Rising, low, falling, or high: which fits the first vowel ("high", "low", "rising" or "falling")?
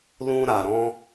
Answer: high